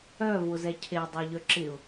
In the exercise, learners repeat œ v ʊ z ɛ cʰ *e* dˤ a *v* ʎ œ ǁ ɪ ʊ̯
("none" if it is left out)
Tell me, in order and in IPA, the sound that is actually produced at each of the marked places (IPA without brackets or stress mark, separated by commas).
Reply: e, none